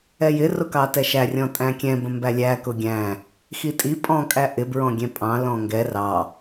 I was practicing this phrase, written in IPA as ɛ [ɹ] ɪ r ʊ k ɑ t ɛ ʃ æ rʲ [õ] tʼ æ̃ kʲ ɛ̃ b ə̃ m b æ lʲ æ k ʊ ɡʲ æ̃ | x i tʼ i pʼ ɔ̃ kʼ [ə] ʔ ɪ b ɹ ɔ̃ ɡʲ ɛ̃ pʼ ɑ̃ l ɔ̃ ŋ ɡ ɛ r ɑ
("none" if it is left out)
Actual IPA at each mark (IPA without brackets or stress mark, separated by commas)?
j, ɔ̃, æ